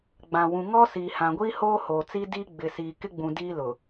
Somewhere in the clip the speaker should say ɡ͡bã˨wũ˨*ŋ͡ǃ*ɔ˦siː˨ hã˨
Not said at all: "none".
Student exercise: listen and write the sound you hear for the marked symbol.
ŋ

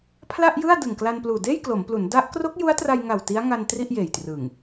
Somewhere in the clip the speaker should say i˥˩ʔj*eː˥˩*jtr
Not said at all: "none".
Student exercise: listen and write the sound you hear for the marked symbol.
eː˨˩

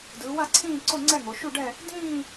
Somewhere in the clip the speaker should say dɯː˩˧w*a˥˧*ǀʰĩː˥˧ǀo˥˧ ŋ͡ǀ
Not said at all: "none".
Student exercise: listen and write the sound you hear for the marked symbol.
a˥˧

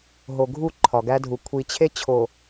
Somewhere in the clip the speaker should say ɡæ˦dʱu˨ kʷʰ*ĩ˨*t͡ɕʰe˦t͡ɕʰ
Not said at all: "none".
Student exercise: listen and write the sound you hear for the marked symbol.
i˨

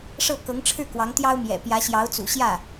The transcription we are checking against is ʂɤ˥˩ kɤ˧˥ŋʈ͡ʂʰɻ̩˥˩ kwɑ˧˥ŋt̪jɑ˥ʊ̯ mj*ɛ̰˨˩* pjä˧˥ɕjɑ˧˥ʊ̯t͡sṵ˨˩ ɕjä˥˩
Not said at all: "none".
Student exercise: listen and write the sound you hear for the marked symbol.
ɛ̰˨˩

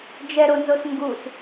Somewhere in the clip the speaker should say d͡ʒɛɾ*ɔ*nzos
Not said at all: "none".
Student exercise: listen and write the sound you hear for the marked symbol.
o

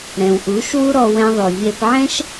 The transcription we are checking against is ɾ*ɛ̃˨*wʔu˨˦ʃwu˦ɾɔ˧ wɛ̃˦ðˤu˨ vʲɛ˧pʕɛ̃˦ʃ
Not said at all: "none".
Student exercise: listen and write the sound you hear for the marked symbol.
ɛ̃˨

